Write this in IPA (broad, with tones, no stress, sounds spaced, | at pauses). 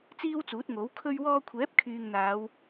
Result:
t͡s iː˥ w t͡s uː˨˥ t̚ ŋ o˨˥ w kʰ ɵ˧ ɥ w ɔː˧ kʷʰ ɛː˨˥ p̚ kʰ yː˨ ŋ n̪ aː˨˧ w